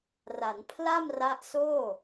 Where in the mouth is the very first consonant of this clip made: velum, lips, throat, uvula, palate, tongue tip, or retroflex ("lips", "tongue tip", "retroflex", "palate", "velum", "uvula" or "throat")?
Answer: tongue tip